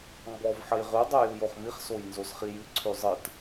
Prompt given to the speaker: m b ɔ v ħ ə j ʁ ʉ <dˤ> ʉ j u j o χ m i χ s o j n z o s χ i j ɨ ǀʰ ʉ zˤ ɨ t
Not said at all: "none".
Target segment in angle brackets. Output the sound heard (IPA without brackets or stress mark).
dˤ